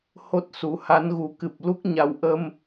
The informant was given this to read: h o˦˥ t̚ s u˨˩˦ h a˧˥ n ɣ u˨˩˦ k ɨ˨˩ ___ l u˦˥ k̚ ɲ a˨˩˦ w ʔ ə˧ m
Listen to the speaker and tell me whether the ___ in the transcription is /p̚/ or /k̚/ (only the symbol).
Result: p̚